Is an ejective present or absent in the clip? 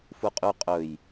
present